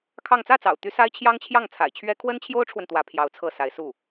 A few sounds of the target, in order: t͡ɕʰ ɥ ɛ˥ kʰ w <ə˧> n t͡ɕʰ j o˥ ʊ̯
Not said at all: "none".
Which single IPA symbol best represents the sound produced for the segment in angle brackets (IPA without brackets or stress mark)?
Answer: ə˥